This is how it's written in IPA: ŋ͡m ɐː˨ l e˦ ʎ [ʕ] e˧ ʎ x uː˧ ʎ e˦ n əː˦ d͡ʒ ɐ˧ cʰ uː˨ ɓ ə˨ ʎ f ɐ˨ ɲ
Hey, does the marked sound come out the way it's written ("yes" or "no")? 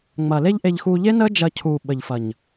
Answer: no